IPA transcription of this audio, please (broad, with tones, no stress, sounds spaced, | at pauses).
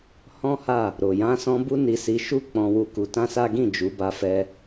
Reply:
h ɔ̃˦ h a˦˨ | ɾ o˨ j ã˧ s ɔ̃˧ b u˦ n i˧ s i˧ ʃ u˦ k͡p ɔ̃˧ w u˧ k u˧ t ã˦ s a˦ ɡ ĩ˦˨ d͡ʒ u˨˦ b a˧ f ɛ˧